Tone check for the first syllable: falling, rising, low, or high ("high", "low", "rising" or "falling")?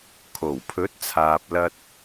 low